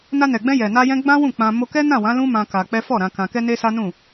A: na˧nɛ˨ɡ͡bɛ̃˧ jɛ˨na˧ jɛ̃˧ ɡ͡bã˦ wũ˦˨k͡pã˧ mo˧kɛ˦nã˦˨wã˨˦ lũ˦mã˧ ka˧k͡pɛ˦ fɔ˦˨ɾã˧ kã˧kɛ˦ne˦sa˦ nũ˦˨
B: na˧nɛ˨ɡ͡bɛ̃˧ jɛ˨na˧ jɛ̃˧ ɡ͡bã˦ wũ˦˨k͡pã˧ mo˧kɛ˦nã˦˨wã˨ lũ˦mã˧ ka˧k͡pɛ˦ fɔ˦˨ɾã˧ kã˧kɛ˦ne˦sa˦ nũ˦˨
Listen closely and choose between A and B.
A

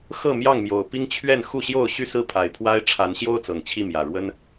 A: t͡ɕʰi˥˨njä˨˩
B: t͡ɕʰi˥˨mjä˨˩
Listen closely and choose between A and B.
B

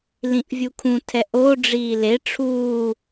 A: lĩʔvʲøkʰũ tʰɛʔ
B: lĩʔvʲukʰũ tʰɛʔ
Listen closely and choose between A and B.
B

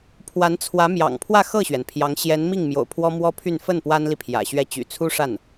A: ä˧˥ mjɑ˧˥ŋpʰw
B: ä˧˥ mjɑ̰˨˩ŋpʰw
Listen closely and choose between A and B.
B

